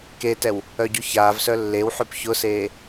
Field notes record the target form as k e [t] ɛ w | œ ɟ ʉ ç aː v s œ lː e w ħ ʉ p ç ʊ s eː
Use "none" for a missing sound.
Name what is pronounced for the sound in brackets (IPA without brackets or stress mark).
t